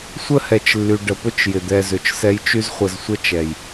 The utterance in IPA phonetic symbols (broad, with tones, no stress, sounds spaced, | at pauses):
sʷ ə˦ h ɛ˨ t͡ʃ lː y˨ ɖ ə˨ p ʊ˦ t͡ʃ j ɪ˨ d̪ ɛ˧ z ʏ˨ t͡ʃ s ɛ˦ j t͡ʃ y˦ z χʷ ə˧ z sʷ ə˦ t͡ʃ ɛ˨ j